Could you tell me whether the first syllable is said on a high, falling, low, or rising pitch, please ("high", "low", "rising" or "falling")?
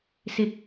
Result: rising